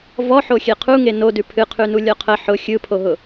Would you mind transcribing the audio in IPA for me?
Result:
v ɔ ħ o xʲ e qʰ u ŋ e n o d ʉ pʰ ɨ qʰ ʉ n u lʲ ɔ qʰ ə ħ ʊ xʲ ɯ pʰ o ɦ ʊ

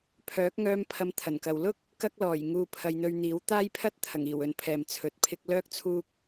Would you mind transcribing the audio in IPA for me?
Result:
pʰ œː˨˥ k̚ ŋ œː˧ m pʰ ɐ˨˧ m t̪ʰ ɐ˨˩ n k ɐ˨ w l ʊ˥ k̚ | k ɐ˧ k̚ l ɔː˨˩ j ŋ uː˧ pʰ ɐ˧ j n̪ ɵ˧ ɥ n̪ iː˨˥ w t̪ aː˥ j pʰ ɐ˥ t̚ t̪ʰ ɐ˨˩ ŋ iː˨˩ w ɵ˨˧ n pʰ ɛː˨ m t͡sʰ ɵ˨˥ t̚ pʰ ɪ˥ k̚ l œː˥ k̚ t͡sʰ uː˥ k̚

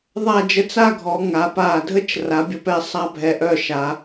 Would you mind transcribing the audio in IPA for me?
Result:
ðˤ a˥˧ d͡ʒ ə˥˧ t͡s a˥˧ ɡʱ ɔ˩˧ ŋ a˩˧ p a˧˩ dʱ ə˥ t͡ʃ r a˩˧ bʲ ə˧ p ɛ˧ sˤ a˥ bʱ ɛ˧ ʔ œ˥˧ ʃ a˩˧

